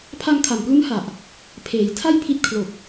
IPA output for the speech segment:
pʰ a˧ ŋ kʰ a˨˩ m p l u˦˥ n h a˨˩ ʔ | pʰ eː˩˦ j tʰ a˥˩ j pʰ i˦˥ t̚ kʰ l o˨˩ k̚

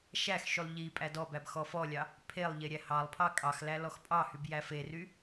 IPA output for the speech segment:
ʃ æ x ʃ y lˠ ʎ i pʼ æ d ɔ b æ b x ɔ f ɔ lʲ ɑ | pʰ e lˠ ʎ e ɾʲ æ h ɑ lˠ pʰ ɑ kʼ ɑ x l æ l ɔ x pʼ ɑ h y b j æ f e r y

